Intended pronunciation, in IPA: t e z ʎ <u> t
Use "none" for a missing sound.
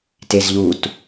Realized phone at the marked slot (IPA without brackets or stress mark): u